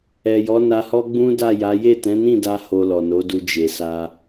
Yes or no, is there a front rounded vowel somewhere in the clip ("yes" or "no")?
no